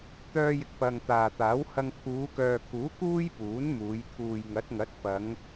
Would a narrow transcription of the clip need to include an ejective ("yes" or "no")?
no